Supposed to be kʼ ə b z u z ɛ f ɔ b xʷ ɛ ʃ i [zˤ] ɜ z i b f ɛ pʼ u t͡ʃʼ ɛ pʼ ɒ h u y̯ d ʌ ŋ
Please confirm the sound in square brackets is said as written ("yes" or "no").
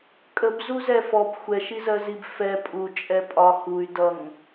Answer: no